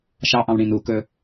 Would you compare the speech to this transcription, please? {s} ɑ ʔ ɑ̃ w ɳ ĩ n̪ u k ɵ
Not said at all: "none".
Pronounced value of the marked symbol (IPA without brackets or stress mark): ʃ